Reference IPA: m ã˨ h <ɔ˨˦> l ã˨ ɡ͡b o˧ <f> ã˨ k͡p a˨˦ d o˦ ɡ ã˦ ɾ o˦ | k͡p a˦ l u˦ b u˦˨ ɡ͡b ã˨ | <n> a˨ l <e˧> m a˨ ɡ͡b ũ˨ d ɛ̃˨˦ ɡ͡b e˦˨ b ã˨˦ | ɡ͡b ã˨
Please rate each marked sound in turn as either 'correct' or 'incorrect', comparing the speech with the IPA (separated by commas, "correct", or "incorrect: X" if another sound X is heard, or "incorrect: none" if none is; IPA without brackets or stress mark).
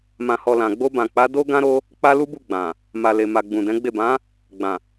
incorrect: ɔ˨, incorrect: b, incorrect: m, incorrect: e˨